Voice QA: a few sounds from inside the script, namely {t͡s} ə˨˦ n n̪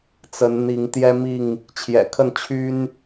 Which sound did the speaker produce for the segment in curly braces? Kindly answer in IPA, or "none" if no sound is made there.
t͡s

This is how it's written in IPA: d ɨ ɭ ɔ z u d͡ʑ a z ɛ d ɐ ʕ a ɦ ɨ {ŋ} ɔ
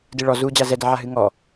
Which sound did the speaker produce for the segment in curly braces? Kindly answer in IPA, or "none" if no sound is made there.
ŋ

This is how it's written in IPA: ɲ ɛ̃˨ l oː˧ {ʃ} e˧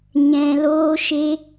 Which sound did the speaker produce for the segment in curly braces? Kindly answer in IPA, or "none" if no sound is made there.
ʃ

